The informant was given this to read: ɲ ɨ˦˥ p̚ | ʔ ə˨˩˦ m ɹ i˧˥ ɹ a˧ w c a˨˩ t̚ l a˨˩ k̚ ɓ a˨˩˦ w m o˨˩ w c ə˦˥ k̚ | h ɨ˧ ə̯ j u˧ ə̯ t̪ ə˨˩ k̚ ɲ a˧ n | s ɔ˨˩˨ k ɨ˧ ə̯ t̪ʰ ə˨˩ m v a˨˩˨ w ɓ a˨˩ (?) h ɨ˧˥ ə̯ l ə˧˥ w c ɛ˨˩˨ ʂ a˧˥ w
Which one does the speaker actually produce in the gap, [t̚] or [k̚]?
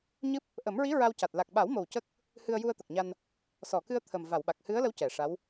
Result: k̚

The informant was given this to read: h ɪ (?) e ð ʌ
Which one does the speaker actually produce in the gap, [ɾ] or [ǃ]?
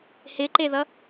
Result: ǃ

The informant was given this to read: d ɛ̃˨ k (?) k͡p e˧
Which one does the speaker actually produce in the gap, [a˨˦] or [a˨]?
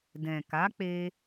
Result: a˨˦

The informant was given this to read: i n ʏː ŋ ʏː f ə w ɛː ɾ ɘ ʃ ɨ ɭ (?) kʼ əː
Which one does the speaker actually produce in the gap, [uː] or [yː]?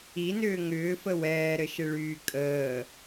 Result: yː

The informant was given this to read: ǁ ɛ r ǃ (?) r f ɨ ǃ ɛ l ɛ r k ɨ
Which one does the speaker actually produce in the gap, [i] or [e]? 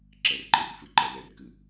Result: i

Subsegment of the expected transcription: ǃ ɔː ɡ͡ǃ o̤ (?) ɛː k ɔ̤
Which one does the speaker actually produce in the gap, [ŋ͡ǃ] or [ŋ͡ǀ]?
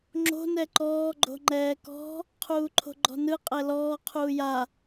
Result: ŋ͡ǃ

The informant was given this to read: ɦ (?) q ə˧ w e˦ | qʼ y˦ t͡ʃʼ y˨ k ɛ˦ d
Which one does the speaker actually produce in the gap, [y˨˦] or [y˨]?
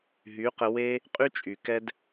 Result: y˨˦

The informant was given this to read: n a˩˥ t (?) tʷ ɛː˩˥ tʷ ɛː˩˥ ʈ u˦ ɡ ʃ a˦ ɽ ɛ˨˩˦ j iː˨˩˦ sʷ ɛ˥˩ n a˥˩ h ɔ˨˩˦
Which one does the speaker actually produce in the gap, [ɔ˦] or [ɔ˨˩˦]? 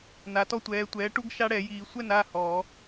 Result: ɔ˦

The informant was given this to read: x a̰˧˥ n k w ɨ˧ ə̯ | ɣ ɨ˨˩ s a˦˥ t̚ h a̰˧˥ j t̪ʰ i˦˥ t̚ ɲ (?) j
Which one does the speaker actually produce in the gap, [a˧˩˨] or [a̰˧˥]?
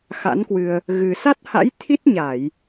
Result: a˧˩˨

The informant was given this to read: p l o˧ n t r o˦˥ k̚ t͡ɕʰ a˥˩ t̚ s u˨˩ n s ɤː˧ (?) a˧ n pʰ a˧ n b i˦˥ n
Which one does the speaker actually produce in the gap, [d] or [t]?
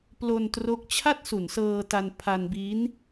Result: t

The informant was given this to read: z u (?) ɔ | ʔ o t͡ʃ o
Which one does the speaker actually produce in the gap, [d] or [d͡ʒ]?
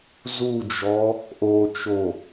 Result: d͡ʒ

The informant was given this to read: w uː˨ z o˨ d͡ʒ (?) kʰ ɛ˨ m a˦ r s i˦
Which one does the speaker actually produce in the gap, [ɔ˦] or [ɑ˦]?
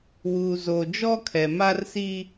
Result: ɔ˦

